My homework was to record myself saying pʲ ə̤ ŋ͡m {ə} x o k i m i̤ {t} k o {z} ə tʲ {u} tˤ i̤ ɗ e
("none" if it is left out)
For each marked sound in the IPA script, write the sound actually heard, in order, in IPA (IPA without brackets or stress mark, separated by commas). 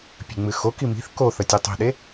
ɨ, θ, θ, ø